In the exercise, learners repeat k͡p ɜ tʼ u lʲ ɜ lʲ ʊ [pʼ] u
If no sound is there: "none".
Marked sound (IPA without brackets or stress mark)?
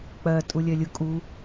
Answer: kʼ